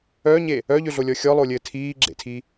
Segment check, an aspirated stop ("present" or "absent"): present